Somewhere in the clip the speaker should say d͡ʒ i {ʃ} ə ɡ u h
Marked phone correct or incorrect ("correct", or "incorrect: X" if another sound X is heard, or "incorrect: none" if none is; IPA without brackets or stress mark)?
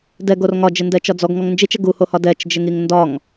incorrect: t͡ʃ